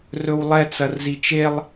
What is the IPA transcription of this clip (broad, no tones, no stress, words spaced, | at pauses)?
rɵwlˠɛ t͡sɐrzit͡ʃelˠ